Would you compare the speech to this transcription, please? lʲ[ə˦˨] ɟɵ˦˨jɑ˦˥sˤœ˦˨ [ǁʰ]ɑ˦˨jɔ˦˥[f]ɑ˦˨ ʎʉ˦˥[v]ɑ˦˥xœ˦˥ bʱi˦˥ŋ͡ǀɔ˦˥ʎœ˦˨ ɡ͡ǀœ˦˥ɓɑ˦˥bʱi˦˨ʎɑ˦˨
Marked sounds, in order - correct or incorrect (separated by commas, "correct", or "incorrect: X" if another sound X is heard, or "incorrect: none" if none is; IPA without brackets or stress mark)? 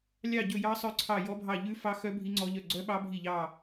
incorrect: ɑ˦˨, incorrect: ǀʰ, incorrect: bʱ, incorrect: f